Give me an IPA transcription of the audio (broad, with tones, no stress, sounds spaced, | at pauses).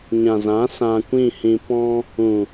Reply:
ɲ ã˨ z ã˨˦ s ã˧ kʷ ĩ˦˨ h ĩ˧ p ɔ̃˦ | ũ˨